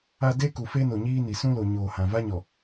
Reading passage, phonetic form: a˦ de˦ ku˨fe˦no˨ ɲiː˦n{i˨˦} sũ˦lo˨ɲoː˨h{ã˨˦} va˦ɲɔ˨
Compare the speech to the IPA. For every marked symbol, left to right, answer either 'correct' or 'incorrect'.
incorrect, incorrect

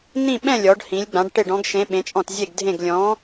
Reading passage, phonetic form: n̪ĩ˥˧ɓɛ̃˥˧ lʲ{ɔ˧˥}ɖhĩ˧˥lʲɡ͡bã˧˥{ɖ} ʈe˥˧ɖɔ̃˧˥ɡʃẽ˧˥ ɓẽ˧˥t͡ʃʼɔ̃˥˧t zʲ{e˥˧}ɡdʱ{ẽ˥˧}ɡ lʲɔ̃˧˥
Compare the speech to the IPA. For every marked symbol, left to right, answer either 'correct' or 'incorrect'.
correct, correct, correct, correct

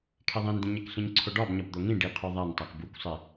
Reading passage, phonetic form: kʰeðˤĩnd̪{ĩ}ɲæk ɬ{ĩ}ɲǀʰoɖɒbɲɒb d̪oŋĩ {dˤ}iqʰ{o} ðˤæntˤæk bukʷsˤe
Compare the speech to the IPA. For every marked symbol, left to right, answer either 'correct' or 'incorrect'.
correct, correct, incorrect, correct

